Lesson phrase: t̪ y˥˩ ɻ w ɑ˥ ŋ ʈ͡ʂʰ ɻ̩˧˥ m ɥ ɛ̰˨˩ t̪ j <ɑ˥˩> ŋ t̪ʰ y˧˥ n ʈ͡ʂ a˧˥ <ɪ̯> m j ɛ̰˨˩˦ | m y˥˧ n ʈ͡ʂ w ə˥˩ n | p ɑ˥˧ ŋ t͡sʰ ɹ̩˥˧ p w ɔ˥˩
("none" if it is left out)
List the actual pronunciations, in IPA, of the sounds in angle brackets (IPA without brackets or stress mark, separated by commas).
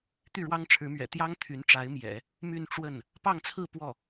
ɑ˥, ɪ̯